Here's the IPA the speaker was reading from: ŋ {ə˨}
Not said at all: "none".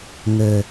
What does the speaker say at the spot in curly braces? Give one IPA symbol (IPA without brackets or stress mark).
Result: ə˨